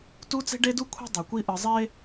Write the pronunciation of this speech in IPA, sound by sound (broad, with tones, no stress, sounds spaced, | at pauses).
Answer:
t u˦ t͡s e̤˦ ɖ e˦ d u˦ kʷʰ i̤˦ dˤ ɯ˨ kʷ i˦ ʔ ɯ˨ zˤ e˦